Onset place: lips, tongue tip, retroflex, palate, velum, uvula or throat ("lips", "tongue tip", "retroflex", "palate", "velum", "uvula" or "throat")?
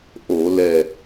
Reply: throat